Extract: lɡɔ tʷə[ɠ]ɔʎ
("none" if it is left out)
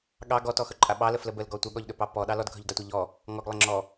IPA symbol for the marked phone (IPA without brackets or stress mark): ɠ